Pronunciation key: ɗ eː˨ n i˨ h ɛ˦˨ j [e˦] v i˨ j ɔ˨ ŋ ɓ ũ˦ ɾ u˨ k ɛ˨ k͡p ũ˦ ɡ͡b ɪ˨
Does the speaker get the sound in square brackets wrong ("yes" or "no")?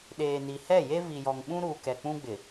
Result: no